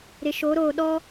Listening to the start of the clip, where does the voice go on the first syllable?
low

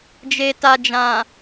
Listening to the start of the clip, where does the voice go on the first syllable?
low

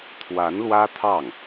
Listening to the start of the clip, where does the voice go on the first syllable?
rising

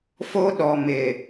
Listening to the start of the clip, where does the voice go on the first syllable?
high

